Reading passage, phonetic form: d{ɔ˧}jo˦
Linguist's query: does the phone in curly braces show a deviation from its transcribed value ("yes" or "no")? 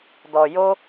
no